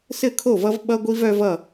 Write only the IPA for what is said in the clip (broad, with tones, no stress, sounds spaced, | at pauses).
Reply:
s ɘ˥˩ kʰ o˥˩ v ʌ˦ v ɓ ʌ˦ ɡʷ i˦ v œ˦ v ʌ˥˩